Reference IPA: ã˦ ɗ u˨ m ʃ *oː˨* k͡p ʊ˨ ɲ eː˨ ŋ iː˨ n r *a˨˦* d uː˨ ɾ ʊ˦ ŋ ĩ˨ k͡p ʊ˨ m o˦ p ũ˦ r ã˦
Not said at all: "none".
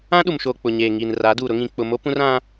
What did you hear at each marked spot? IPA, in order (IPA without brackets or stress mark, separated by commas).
oː˨, a˨˦